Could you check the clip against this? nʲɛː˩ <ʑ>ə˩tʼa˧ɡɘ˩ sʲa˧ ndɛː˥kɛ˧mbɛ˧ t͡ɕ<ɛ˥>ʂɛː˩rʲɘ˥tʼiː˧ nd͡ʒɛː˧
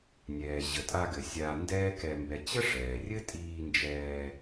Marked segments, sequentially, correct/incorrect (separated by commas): correct, incorrect